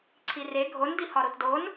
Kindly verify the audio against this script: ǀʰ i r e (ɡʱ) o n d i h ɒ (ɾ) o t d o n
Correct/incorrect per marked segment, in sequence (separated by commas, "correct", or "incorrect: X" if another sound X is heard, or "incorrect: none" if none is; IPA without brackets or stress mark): correct, correct